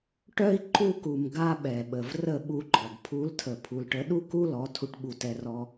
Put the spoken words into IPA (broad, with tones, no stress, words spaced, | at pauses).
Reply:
ʈœ˦i̯ ǃu˧ku˨m ɡa˦ɓɛ˨ɓə˨v rə˦˨ɓu˧ɡ͡ǃɔ˨ɡ pʰu˨˦ltʰə˨ pʰu˨lʈə˨˦ɗu˦ ku˦lɔ˨˦ tʰu˧ʈɓu˧tɛ˧rɔ˧